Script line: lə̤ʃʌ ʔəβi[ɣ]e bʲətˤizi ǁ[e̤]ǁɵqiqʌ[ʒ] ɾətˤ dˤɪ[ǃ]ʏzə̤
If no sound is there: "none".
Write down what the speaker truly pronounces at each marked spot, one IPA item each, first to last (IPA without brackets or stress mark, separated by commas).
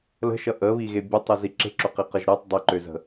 ɣ, e̤, ʒ, ǃ